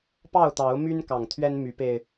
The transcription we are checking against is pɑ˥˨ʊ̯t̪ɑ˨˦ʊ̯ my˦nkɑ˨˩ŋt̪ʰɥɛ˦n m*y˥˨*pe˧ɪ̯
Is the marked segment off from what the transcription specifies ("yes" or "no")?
yes